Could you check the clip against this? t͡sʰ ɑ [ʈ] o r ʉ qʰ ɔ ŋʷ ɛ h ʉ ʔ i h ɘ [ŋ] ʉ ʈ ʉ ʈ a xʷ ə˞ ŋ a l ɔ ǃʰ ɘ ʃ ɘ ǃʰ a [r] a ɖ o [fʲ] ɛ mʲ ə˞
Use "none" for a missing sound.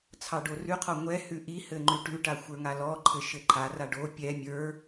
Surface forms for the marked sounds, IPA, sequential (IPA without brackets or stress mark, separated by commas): ɖ, ŋ͡ǃ, r, pʲ